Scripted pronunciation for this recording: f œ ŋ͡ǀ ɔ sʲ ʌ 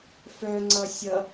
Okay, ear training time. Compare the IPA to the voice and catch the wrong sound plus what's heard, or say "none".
ɔ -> ʌ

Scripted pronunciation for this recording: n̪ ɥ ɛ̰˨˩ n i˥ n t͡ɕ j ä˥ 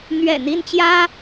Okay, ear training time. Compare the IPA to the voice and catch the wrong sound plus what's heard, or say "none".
i˥ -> i˥˩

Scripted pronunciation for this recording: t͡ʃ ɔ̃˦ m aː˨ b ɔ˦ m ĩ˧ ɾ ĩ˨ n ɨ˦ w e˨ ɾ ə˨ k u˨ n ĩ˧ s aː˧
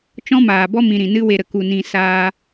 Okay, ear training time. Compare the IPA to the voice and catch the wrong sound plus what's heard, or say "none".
none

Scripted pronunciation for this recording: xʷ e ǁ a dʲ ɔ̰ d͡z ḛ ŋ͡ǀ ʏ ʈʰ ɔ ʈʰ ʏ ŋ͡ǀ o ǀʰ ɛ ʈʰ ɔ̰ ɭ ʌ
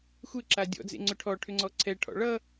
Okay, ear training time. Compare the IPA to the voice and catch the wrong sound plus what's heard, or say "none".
o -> ɔ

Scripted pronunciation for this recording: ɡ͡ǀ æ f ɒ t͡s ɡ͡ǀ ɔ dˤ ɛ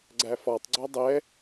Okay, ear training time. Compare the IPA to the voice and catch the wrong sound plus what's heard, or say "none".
t͡s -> tˤ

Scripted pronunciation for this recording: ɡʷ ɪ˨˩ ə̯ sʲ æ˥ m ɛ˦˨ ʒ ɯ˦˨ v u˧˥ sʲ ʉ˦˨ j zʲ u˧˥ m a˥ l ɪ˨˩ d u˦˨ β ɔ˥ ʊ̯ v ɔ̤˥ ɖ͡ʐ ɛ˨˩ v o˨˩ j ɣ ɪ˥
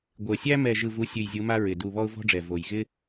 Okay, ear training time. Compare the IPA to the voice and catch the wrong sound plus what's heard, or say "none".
l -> ɹ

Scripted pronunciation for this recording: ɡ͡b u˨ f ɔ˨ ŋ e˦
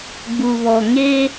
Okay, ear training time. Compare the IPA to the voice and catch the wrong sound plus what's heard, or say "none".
f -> β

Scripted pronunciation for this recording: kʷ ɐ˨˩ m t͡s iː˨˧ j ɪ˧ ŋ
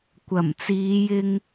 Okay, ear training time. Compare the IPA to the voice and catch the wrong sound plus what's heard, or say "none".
none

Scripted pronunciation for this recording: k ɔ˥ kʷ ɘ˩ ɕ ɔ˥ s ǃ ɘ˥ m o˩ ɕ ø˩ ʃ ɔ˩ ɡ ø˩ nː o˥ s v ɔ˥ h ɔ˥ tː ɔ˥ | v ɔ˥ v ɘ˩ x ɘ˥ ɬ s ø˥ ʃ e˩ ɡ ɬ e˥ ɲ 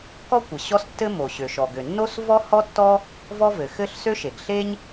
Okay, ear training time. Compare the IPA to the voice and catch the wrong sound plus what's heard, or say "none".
ǃ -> tː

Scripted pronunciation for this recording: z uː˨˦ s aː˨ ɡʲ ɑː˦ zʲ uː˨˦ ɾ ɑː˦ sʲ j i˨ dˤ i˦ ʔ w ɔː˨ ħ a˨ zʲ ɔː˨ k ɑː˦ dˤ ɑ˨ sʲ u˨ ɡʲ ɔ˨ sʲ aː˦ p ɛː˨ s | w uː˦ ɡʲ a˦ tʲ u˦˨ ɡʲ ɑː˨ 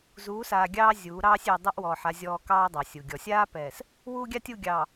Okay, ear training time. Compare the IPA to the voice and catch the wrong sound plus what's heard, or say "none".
none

